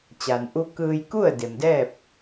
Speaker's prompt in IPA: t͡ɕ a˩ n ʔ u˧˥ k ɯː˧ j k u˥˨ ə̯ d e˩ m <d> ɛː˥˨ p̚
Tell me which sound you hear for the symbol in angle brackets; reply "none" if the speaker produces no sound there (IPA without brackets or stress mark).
d